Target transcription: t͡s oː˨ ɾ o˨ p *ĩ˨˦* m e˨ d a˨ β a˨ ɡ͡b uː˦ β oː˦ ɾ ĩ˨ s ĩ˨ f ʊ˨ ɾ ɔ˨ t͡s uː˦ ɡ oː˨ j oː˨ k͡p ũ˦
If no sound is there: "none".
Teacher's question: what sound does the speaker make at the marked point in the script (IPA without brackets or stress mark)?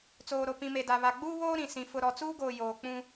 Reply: ĩ˨